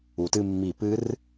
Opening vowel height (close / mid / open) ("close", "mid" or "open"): close